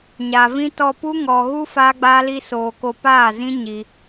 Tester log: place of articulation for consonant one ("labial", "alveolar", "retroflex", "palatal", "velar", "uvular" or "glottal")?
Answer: palatal